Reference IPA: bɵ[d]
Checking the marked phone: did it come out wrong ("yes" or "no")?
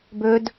no